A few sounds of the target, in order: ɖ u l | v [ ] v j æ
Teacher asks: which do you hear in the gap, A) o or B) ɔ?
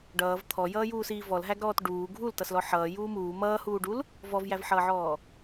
B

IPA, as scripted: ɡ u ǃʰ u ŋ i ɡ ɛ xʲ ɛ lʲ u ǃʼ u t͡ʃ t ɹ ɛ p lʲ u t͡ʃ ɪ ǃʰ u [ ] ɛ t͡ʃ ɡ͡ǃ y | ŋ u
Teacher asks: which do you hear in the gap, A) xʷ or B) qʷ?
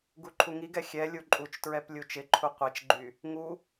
B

